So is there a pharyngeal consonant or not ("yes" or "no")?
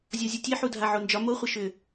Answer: yes